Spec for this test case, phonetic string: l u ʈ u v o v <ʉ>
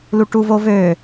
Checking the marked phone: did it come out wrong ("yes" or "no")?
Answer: yes